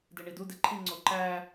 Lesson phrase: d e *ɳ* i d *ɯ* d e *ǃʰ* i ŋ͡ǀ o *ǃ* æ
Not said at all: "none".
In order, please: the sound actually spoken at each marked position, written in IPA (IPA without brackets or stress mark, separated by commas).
ɳ, u, ǃʰ, ǃ